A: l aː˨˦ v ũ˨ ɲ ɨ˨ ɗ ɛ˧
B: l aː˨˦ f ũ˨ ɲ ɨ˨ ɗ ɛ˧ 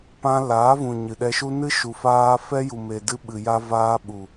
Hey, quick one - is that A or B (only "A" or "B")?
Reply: A